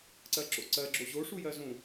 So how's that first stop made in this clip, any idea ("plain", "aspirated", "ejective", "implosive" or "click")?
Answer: click